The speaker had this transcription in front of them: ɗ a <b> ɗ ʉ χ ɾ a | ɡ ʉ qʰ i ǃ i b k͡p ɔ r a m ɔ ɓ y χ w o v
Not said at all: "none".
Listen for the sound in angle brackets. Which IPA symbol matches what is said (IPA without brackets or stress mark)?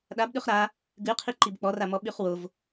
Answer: b